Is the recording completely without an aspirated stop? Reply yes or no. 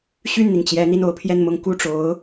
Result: no